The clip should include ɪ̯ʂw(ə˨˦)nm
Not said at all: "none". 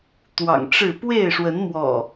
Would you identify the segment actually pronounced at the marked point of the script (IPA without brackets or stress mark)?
ə˨˦